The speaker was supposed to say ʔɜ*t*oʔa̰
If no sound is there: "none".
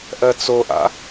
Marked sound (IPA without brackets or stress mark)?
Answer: t͡s